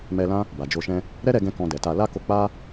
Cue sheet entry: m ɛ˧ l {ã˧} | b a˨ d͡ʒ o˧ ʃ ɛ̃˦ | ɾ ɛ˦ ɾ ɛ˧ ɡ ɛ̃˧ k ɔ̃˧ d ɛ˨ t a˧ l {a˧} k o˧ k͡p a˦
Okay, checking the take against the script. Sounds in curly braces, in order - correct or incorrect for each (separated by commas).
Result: incorrect, incorrect